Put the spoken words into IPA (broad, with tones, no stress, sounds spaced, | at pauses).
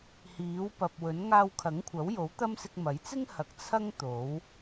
h iː˨˥ w p ɐ˨ p̚ w ɵ˨˥ n ŋ aː˧ w kʰ ɐ˨˥ ŋ kʷʰ ɐ˨˥ w j o˨˥ w t̪ ɐ˥ m s ɪ˧ k̚ m ɐ˨˥ j t͡s ɪ˥ ŋ h ɐ˨˥ k̚ t͡sʰ ɐ˥ ŋ t̪ o˨˥ w